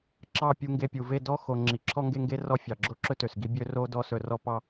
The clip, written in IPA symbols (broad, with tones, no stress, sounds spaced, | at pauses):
ǁ ɑ˦˨ pʲ u˧ ŋ ɡ e˧ pʲ u˨ v e˦˨ d ɔ˦ x o˨ ŋ͡ǁ i˨ ǁʰ ɔ˦ ŋ ɡ e˦ ŋ ɡ e˦ r ɔ˦˨ fʲ ɑ˨ ɡ͡ǁ o˦ ǁ ɵ˦ t ø˨ s ɡ i˦ bʲ ø˦ r o˦ d ɔ˦ s ɵ˧ r ɔ˦ p ɑ˦